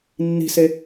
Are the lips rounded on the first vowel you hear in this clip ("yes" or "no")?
no